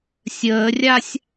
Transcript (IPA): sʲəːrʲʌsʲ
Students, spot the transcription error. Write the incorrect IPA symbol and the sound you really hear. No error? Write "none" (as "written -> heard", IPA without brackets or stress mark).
ʌ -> a